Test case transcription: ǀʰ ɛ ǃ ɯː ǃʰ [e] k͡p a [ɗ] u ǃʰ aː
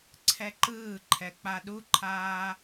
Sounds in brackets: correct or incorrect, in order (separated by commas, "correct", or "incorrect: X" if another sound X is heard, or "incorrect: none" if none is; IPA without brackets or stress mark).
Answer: incorrect: ɛ, correct